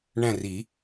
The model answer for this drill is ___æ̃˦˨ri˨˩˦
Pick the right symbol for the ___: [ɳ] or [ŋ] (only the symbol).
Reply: ɳ